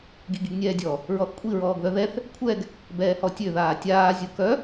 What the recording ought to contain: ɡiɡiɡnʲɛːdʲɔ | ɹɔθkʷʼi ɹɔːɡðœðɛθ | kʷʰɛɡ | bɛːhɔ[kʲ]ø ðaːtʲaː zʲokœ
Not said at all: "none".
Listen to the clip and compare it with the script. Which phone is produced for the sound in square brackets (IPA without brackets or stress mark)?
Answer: tʲ